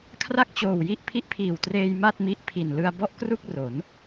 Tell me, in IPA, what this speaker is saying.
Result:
kʰra˥˩k̚t͡ɕoː˨˩wji˦˥ʔ pʰi˦˥ʔpʰiː˨˩wtreː˧j ma˥˩t̚mi˦˥ʔ pʰi˨˩nlɯ˧a̯bɔ˥˩ʔ kru˥˩k̚ro˩˦n

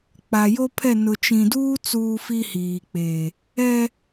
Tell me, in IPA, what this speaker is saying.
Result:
k͡pa˨jo˦pʰɛ˦˨ nʊ˨t͡ʃĩ˨duː˦ t͡suː˦fi˦hiː˨k͡peː˨ | ɛ˦

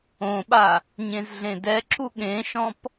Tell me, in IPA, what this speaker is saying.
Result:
õɓa | ɲẽzɮẽdɛǁu ɠẽʃɔ̃p

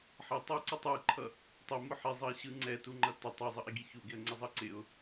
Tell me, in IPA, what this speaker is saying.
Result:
ħʌtˤuǀutˤ ɯǃʰʌ | tˤɪmʊ ħizˤʌɪ̯ɕɯ ŋ͡ǀɛtuŋ͡ǃʌ tɪ tˤizˤʌʔiɡi çuɡɪə̯ŋ͡ǀɪzˤʌ ǀɪʊ̯

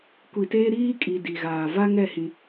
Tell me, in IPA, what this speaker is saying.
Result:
kʷi˨teː˦ ɾiː˦kʼi˨ di˨ɣaː˨ va˦ŋɛ˦˨ hĩ˦

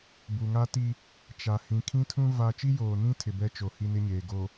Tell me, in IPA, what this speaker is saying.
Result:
bu˨ŋa˦ti˦ | t͡ʃa˨ hĩ˨kʰĩ˦tʰũ˦ va˦ t͡ʃi˦joː˨nĩ˦tʰɪ˨ bɛ˦t͡ʃo˨ hi˦nɪ˦ɲeː˨ ɡo˨

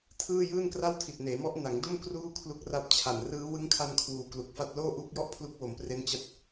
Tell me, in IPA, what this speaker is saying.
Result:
tʰɯː˥˩jɯː˥˩n kra˥˩wtʰi˨˩t̚neː˩˦mɔ˦˥ʔ na˩˦ŋdo˥˩m kruː˥˩kʰlu˦˥k̚ra˦˥p̚ t͡ɕʰa˨˩n rɯː˦˥ wɯ˦˥ŋkʰa˧n kʰwuː˨˩klu˨˩k̚fa˥˩t̚ loː˥˩ʔuː˦˥k̚jɔ˥˩ʔ pʰlu˦˥k̚wo˩˦mpre˦˥n t͡ɕa˦˥t̚

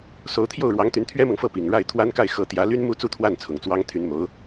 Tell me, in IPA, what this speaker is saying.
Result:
so˧˥ʊ̯t̪ʰjo˥˩ʊ̯ɻwɑ˧˥ŋt̪y˧˥n t̪ʰɥɛ˥mɤ˨ŋfɤ˥˩ pi˨˩ŋɻa˥˩ɪ̯ t̪ʰwa˥nka˥˩ɪ̯xɤ˧˥ t̪jä˧˥ly˥nmu˥˧ t͡su˥˧t̪ʰwa˥˩n t͡sʰʊ˨˩ŋt͡swɑ˥ŋ t̪ʰy˧˥nmo˧˥ʊ̯

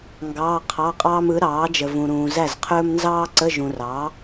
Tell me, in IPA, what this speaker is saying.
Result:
ŋɡɑː˧˥˧qʰɑ˧˥˧qʼɑː˥m ɯ˩˥ɾɑː˩˥d͡ʒə˨vũ˨ ɾũː˨zæ˥˩zqʰɵː˥m nzɑː˥ǀə˧˥˧ʒũ˨rɑ˩˥

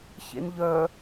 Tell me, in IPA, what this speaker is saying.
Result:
çḛnʎœ

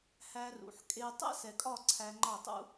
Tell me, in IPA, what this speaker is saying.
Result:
hæ˧ rṵ˨ħkʼe˧ tˤɛ̰˦sɛ˨kʼɒ˦˨ ǀʰæ˧ŋ͡ǃɒ˦˨tˤṵ˦

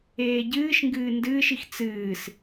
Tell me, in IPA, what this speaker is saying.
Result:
eːɟɨːʃŋɡɨː ndɨːʃix t͡sɨːs

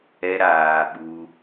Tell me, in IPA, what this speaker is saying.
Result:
ɛ˧ɾaː˨ ɓu˧

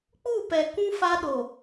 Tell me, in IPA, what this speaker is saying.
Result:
k͡pu˦˨pɛ˨ kũ˦ fa˦ɗo˨

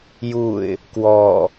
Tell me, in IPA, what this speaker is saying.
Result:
juɪ̯ | kwɔ

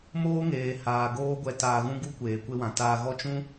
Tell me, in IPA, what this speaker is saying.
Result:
moː˦ŋeː˨ haː˨ ɡoː˦ɡʷɛ˧ taː˧ɣũ˦ɡu˦kʷeː˨ kʷe˧wã˨ taː˧ɣɔ˦ t͡ʃũ˦

